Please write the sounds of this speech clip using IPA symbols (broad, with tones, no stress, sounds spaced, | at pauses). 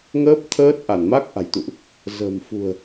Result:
ŋ əː˦˥ p̚ t̪ʰ əː˦˥ t̚ ʔ a˧˩ n m a˦˥ k̚ ʔ a̤˨˩ j t̪ ṵ˧˨ ʔ | z ə̤ː˨˩ m f ṳ˨˩ ə̯